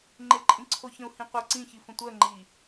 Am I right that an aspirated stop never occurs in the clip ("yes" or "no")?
no